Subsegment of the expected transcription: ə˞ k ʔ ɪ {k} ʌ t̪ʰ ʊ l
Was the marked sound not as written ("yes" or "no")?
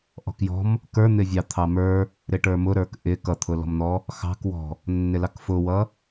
no